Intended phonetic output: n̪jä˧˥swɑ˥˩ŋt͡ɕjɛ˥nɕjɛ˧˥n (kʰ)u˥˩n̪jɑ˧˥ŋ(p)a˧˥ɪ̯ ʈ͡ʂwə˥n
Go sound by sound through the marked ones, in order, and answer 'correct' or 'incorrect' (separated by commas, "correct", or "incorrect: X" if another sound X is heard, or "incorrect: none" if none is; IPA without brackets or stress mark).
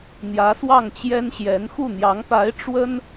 incorrect: x, correct